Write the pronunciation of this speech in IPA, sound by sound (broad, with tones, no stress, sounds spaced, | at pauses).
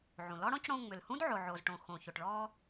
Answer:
ʕ ũ˩ l ɔ˥ ɽ ɔ̃˥ c ɽ õ˧ ŋ͡m ʏ˩ l h ũ˥ d ʕ o˩ ʕ oː˩ z ʈ õ˩ x õ˩ ç o˩ ʈ ɭ ɔː˧